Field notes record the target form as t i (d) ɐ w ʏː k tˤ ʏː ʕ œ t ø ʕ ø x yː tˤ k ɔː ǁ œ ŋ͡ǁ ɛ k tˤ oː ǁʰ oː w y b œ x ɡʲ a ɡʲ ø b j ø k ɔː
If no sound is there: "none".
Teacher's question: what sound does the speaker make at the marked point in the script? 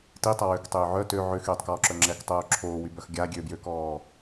tˤ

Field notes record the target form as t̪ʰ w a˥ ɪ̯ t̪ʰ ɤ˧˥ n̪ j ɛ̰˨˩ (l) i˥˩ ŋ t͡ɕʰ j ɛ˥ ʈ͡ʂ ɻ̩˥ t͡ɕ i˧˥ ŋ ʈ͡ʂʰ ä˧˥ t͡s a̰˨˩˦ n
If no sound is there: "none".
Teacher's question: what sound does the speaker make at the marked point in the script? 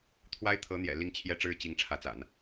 l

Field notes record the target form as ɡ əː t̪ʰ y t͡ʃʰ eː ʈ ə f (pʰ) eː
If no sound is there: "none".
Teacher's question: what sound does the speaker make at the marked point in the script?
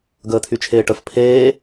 pʰ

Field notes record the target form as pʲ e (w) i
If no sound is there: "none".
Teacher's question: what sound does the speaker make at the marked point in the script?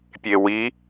w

